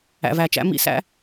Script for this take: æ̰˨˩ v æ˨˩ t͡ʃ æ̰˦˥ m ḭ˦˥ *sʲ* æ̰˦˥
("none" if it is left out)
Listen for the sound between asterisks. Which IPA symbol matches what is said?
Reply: s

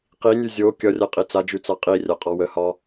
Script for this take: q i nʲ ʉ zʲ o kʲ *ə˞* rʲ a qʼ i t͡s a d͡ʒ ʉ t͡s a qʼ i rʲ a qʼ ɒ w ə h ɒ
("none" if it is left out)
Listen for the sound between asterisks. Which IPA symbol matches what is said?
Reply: ʌ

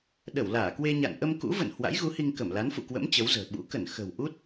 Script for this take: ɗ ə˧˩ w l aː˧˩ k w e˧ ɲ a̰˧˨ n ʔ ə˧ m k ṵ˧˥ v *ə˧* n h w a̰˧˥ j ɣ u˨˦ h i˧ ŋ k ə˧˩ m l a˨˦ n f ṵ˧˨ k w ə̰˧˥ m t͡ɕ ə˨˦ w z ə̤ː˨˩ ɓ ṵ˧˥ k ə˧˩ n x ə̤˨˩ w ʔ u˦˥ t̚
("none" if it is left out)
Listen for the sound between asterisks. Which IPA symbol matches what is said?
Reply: ə̰˧˨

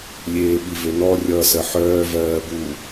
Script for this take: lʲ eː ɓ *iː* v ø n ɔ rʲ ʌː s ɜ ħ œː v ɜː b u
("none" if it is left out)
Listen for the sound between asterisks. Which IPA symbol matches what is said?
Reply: i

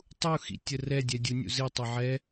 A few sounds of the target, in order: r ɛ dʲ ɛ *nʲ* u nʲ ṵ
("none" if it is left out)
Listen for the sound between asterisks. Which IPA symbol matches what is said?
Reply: dʲ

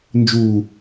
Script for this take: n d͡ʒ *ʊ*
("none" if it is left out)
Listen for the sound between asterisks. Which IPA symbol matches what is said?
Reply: u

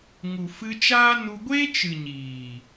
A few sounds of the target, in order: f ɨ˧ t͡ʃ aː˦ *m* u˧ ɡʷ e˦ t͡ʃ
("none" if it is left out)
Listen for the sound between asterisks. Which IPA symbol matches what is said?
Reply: n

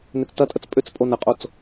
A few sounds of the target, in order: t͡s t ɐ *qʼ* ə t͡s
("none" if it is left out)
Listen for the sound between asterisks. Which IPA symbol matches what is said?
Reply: tʼ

